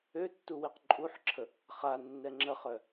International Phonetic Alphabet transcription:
ø tː u w i q ǃʼ u ħ ǁʰ ə | χ a nː ɛ ŋ͡ǁ ə χ œ

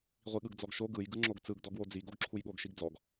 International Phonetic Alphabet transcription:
ʁʷ i ɠ ɯ ɡ d͡z ɔ ɡ ʃ o ɡ ɯ j ɡ ɯ ŋ͡ǁ o ɡ t͡s ɯ ɡ d ɔ ɡ w o d͡z i ɡ o ɡ ǁʰ u j ɠ o ɡ ʃ i ɡ d͡z ɔ ɡ

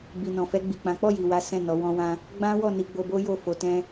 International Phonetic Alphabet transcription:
b i˨ n ɔ̃˨ f ɛ˧ ɡ͡b i˨ k͡p ã˨˦ k͡p ɔ˦˨ j i˨ w a˨˦ s ɛ̃˦˨ n ɔ˨˦ w ɔ̃˦ w ã˦ | ɡ͡b ã˦ w ɔ˦˨ n i˧ ɡ͡b o˧ b o˦ j o˦˨ f o˧ t ɛ̃˦

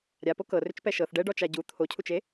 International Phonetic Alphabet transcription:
ɾʲ a p o k ɤ r ʏ t͡ʃ p ɛ ʃ ɤ θ ɖ ɛ ɖ ɔ t͡ʃ a ɟ u t̪ʰ o cʰ u t͡ʃ e

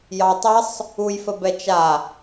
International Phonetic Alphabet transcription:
j ɑ tˤ ə sˤ | u j f ə b ɛ t͡ʃ a

